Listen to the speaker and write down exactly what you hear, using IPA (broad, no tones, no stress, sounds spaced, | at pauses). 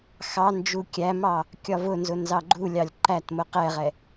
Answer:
x ɑ n d͡ʒ u kʲ æ m ɑ | kʲ ɒ v ʊ n z ʊ n z ɑ ɡ͡ǃ u lʲ ɑ lʲ ǃ æ t m ʊ q ɛ ʁ ɛ